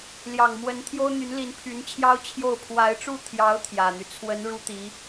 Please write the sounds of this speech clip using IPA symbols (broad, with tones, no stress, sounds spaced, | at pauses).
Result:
l j ɑ˨˩ ŋ m w ə˧˥ n t̪ʰ j o˥ ʊ̯ n̪ y˧˥ n l i˧˥ n pʰ y˧˥ n t͡ɕʰ j ɑ˥ ʊ̯ t͡ɕʰ j o˥˩ ʊ̯ pʰ w a˧˥ ɪ̯ ʈ͡ʂ u˥˩ t̪ʰ j ɑ˧˥ ʊ̯ t̪ʰ j ä˨˩ n̪ y˦ t͡sʰ w ə˧˥ n ɻ u˥ t̪ i˧˥